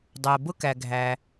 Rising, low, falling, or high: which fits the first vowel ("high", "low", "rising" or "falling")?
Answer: low